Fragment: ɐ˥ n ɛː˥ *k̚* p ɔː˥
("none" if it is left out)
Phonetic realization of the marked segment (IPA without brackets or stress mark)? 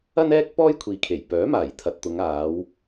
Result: k̚